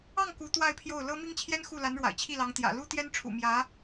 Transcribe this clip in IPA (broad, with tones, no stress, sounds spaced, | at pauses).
ɑ˥˩ ŋ k u˧˥ t̪ w a˥˧ ɪ̯ pʰ j o˥˩ ʊ̯ l ɤ˥ m i˥ ŋ t͡ɕʰ j ɛ˥ n x u˥˩ l a˧˥ n ɻ w a̰˨˩ ɪ̯ t͡ɕʰ i˥˩ l ɑ˧˥ ŋ t̪ j ä̰˨˩ l u˥ t̪ j ɛ˥ n ʈ͡ʂʰ ṵ˨˩ m j ä˧˥